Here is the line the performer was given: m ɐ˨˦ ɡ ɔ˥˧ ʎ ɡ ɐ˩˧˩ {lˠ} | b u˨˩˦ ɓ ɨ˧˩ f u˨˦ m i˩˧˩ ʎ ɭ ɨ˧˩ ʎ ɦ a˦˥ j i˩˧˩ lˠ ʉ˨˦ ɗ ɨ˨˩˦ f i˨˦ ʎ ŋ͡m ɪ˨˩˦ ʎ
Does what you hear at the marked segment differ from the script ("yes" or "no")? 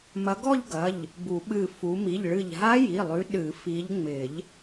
yes